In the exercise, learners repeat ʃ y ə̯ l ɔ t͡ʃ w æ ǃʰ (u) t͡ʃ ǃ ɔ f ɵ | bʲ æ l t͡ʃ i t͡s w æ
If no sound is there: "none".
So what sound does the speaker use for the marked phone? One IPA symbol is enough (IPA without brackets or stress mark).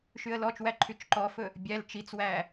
y